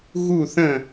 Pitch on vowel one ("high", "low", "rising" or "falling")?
falling